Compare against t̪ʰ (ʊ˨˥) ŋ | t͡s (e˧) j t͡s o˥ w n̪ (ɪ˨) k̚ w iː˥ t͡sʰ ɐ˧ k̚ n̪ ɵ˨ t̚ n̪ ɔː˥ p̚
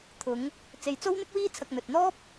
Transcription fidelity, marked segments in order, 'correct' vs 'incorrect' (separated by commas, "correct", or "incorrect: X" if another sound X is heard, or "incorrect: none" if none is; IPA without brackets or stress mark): incorrect: ʊ˨˧, incorrect: e˨, incorrect: ɪ˥